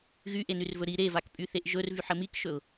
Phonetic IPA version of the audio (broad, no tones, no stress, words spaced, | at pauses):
ɣyʔenyrvɵ ɾi ɾevakpʼyθeʔ ʒɵrvyħə mikʃɵʊ̯